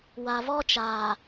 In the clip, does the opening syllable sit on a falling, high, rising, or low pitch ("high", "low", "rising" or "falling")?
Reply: low